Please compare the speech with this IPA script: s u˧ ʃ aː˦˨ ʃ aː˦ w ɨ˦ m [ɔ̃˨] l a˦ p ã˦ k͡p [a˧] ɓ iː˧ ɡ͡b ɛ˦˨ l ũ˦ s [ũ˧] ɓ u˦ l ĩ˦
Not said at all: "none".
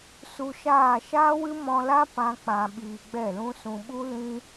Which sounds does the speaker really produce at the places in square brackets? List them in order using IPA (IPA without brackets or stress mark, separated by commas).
ɔ̃˧, ã˧, ũ˧